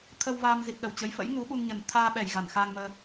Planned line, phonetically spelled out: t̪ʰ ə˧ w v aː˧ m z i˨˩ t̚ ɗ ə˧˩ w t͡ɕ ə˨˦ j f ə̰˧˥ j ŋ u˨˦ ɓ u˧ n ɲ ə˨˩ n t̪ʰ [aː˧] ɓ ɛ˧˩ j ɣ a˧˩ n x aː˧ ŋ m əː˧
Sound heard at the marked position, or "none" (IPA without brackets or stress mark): aː˧